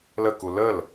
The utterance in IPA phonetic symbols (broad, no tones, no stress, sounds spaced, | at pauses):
l ə k u l ə l